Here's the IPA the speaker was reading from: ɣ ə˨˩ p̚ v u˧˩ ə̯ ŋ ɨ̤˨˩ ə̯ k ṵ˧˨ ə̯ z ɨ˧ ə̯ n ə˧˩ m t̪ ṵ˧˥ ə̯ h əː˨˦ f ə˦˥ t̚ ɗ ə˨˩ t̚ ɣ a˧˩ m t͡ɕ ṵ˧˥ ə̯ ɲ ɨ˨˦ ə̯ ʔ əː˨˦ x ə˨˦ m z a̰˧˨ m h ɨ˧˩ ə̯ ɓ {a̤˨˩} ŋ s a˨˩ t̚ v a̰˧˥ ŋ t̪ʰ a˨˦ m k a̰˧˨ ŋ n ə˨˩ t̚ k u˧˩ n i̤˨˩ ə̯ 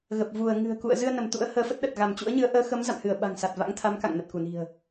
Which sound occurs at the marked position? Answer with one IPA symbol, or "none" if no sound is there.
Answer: a̤˨˩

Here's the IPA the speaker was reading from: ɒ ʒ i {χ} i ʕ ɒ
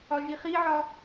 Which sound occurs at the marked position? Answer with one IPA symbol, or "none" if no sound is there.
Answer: χ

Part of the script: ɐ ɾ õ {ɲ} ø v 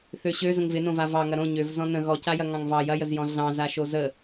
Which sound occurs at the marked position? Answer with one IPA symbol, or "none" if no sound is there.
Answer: ɲ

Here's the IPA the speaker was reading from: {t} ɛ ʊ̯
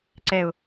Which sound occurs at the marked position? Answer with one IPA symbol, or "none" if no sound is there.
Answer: ǀ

